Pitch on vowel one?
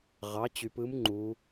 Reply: rising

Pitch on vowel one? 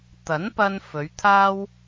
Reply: rising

